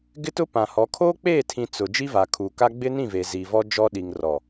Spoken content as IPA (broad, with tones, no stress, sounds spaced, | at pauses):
ɡ ɪ˦ t ʊ˦ p ã˨ h ɔ˨˦ kʰ oː˦ k͡p eː˦˨ tʰ ĩ˨ t͡s ʊ˨ d͡ʒ i˦ v a˨ kʰ uː˨ k a˦ ɡ͡b ɪ˦ n ĩ˦˨ v e˨ z iː˨ v ɔ˦ d͡ʒ ɔ˦ ɗ i˨ ŋ r ɔ˨